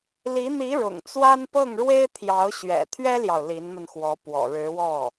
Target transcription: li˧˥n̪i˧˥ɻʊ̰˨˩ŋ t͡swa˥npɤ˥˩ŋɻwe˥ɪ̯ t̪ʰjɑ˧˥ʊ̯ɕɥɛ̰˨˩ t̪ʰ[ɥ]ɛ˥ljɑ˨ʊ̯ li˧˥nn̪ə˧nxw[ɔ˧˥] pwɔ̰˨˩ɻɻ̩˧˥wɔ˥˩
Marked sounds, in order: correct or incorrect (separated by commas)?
correct, correct